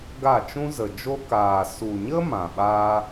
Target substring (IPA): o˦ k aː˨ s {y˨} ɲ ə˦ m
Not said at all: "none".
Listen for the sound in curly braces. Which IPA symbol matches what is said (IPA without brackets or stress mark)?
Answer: u˨